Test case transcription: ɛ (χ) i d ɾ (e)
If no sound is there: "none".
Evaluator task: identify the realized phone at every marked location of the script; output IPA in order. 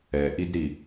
ʔ, i

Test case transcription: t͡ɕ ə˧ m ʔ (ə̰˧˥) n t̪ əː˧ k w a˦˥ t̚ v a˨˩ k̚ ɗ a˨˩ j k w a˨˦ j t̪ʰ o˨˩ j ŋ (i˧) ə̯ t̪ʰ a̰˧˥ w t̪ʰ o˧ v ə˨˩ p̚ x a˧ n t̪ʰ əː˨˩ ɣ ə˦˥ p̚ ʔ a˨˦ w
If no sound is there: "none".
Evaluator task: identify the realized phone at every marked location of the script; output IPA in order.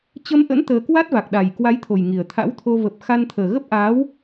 ə̰˧˥, i˨˩

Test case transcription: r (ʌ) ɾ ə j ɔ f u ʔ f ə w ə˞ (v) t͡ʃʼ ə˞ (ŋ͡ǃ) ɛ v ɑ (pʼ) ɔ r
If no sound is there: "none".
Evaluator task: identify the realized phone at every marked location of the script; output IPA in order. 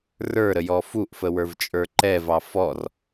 ə˞, v, ǃ, f

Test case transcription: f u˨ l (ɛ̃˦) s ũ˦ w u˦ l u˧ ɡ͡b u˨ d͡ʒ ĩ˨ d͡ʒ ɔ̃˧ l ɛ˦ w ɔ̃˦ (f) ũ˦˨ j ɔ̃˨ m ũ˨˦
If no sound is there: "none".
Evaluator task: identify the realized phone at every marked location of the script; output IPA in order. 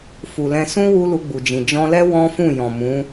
ɛ̃˧, f

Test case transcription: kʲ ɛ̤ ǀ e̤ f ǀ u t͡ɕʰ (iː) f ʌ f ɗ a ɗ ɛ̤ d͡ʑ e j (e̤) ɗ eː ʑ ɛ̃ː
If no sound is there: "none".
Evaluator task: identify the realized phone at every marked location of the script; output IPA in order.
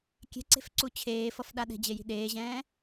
eː, i̤

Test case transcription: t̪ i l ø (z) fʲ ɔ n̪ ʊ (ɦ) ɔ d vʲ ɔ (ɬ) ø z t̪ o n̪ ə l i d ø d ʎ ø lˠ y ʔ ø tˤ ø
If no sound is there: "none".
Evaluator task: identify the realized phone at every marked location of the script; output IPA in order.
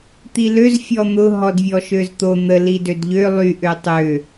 z, ɦ, ʃ

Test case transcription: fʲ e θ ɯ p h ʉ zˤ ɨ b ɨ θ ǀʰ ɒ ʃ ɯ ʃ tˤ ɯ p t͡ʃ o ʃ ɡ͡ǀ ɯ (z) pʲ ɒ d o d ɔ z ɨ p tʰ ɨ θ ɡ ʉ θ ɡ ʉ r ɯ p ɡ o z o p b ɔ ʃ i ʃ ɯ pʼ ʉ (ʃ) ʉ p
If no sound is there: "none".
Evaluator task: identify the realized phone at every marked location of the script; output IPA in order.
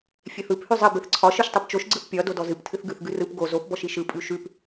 θ, ʃ

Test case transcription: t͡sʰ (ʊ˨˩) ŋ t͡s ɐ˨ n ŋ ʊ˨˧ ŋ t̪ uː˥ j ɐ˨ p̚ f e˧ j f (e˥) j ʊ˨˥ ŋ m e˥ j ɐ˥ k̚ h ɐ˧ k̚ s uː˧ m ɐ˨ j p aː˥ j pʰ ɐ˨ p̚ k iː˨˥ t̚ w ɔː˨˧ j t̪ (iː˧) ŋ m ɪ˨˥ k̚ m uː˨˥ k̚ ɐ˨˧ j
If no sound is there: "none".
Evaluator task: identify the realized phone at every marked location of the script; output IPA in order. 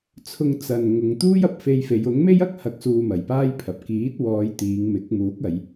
ʊ˧, e˨˧, iː˨˧

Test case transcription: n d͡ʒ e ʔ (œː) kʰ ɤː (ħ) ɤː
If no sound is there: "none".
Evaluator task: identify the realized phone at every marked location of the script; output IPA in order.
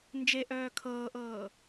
œː, ʔ

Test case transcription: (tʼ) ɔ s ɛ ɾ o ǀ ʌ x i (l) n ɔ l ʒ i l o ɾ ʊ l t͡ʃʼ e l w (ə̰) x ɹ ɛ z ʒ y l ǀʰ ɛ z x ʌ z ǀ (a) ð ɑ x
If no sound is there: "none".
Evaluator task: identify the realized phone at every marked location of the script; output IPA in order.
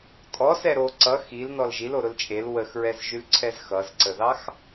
tʼ, l, ə, ə

